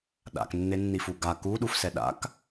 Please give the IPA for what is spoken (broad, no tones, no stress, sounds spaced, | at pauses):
ɗ a̰ k nː e nː i f u ɡ a k u ɗ u f s ɛ ɗ a̰ k